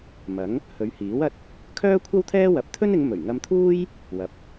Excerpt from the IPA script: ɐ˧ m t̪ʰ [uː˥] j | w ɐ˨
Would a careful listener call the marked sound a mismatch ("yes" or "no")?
no